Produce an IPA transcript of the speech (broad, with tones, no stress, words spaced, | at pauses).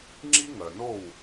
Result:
ŋ͡ǁi˥ŋœ˩no˥˩w